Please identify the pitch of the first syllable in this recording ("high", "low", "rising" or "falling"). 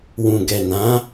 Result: low